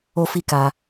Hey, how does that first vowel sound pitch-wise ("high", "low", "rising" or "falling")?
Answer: high